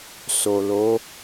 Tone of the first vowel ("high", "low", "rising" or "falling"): low